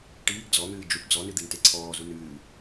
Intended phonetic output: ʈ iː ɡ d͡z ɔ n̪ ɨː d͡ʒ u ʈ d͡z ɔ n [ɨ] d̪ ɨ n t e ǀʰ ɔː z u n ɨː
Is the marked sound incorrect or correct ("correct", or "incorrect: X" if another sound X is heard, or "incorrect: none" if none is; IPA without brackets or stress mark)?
correct